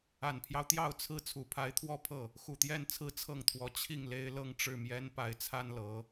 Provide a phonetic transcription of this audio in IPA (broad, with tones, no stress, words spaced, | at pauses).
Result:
a˨˩npʰjɑ˦ʊ̯t̪jɑ˥˧ʊ̯ t͡sʰɹ̩˥˩ t͡sʰu˨˩pʰa˧˥ɪ̯t̪ʰwɔ˥˧pʰɤ˥˩ | xu˨˩t̪jɛ˥˩nt͡sʰɹ̩˥ t͡sʰɤ˥˩ŋt̪ʰwɔ˧˥ t͡ɕʰi˥˩ŋle˥ɪ̯ lɤ˥˧ŋʈ͡ʂɻ̩˥˩mjɛ˥npa˧˥ɪ̯ t͡sʰa˥nlɤ˧˥